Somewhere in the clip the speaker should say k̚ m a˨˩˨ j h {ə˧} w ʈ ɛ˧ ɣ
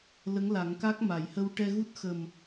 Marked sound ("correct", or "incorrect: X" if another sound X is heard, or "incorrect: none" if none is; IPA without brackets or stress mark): correct